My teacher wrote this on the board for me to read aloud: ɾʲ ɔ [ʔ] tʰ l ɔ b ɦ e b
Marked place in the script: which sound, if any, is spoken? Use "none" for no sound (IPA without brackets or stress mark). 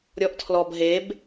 ʔ